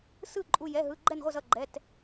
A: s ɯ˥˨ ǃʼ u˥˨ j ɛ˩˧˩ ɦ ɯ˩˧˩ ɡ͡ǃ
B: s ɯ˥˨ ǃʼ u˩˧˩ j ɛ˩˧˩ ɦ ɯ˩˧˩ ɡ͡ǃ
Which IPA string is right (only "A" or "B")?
B